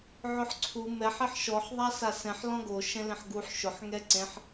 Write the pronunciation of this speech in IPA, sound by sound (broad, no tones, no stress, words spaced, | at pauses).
ʕʊħǀʰu mɛħ ɪħʃɔħ ðˤasasɛ̃ħ lɔ̃ɡo ʃɛ̃lẽħɡuħ ʃʊħ ŋɛǀẽħ